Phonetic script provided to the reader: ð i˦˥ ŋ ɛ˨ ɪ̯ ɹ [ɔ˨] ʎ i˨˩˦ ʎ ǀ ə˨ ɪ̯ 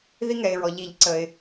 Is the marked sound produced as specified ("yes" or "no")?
yes